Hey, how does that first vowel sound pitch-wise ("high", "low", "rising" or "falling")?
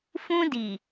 high